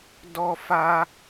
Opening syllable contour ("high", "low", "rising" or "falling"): high